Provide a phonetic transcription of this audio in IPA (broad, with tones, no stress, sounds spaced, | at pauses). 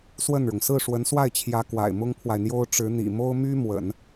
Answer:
s w ə˥˩ n ɻ ʊ˩ ŋ s ɹ̩˥˩ ʂ w ə˧˥ n s w a˥˩ ɪ̯ t͡ɕʰ j ä˧˥ k w a̰˨˩ ɪ̯ m ʊ˥ ŋ pʰ w a˨ ɪ̯ n̪ j o˥ ʊ̯ ʈ͡ʂ ɻ̩˧˥ n̪ ḭ˨˩ m o˥ ʊ̯ m y˥ m w ə̰˨˩˦ n